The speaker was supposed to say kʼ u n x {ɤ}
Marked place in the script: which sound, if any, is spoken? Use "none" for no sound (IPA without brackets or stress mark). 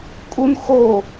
o